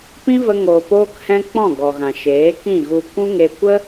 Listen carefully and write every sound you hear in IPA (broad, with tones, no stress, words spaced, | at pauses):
pĩ˦və˧ ŋoː˨poː˧khɛ̃˧ k͡pɔ̃˦˨ɡɔ˨ɣã˨ʃeː˨˦ kĩ˦˨ɣu˧ kʷũ˦ŋe˧ kʷə˦